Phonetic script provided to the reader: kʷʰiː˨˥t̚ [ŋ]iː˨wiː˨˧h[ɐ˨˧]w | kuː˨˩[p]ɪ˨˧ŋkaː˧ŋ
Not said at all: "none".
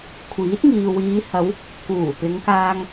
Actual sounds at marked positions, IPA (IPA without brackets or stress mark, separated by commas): ŋ, ɐ˨˧, p